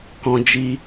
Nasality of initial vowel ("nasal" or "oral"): nasal